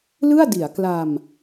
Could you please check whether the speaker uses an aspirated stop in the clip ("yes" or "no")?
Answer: no